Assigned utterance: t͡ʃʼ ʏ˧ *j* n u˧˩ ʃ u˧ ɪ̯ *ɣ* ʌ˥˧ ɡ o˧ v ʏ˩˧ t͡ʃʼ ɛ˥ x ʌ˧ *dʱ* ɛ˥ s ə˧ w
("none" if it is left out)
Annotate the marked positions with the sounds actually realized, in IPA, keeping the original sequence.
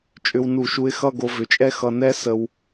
w, x, n

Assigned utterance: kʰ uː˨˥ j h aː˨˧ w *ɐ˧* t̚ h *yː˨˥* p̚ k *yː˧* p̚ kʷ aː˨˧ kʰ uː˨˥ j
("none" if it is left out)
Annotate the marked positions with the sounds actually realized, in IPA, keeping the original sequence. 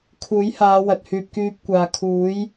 ɐ˨, yː˧, yː˧

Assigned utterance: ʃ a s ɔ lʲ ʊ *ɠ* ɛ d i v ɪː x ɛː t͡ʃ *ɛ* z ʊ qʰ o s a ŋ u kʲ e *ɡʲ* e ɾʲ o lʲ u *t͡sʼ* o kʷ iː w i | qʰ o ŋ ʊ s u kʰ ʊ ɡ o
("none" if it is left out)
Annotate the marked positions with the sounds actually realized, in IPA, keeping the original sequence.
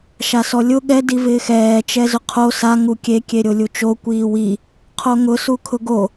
ɠ, ɛ, kʲ, t͡ʃ

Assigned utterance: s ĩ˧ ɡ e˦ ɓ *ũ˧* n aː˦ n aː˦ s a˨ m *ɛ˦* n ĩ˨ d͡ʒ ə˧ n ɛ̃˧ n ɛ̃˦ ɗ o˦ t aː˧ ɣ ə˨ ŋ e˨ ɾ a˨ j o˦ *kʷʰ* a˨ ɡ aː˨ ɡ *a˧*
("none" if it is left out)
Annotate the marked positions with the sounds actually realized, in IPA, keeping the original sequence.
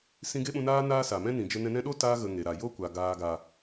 ũ˧, ɛ̃˦, kʷ, a˨

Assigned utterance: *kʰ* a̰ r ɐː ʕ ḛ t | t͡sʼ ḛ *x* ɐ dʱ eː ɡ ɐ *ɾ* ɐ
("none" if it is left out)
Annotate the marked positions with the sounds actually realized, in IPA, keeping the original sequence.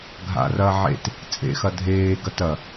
ɡʱ, x, t

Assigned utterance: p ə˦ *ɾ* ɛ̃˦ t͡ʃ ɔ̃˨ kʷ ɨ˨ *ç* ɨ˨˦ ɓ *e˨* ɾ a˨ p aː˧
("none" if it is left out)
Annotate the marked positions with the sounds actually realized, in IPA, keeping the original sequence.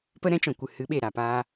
ɾ, h, e˨

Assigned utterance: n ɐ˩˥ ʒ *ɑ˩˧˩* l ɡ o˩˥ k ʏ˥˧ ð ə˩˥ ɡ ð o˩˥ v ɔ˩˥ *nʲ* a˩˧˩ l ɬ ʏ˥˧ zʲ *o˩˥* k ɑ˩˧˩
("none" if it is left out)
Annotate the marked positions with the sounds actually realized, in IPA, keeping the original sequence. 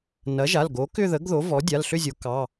a˩˧˩, dʲ, o˩˥

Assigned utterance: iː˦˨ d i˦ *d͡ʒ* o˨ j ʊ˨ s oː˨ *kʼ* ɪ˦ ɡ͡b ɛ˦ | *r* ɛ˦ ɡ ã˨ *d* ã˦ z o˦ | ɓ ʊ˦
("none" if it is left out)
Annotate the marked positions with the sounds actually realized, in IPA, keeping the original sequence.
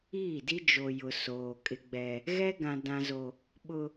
d͡ʒ, kʼ, ɣ, d

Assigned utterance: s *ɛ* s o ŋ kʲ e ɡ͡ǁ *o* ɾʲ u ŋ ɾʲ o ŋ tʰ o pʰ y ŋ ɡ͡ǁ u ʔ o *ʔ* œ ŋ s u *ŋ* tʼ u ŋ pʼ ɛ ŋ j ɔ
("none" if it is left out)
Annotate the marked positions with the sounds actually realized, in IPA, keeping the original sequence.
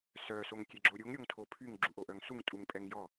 œ, o, ʔ, ŋ

